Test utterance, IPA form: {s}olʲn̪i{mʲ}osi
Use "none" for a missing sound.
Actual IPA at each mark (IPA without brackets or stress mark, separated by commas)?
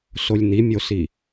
s, mʲ